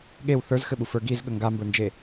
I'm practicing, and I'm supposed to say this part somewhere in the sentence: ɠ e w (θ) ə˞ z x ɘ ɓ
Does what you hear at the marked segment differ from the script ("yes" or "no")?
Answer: no